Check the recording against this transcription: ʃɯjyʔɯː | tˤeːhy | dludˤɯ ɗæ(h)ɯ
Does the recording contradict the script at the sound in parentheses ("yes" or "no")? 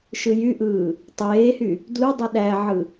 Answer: yes